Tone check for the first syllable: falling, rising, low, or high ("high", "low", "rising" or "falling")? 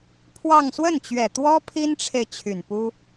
falling